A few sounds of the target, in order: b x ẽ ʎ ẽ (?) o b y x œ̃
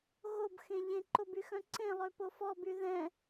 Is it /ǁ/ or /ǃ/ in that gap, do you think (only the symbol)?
ǃ